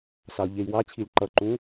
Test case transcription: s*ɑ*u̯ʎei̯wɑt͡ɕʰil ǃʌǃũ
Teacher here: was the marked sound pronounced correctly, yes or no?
yes